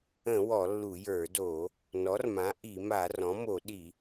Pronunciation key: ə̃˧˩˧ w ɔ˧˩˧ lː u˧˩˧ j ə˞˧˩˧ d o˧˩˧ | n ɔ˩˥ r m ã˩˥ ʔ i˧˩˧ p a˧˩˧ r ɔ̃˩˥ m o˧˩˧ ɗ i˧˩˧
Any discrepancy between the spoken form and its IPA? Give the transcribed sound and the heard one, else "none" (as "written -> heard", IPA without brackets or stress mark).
p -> m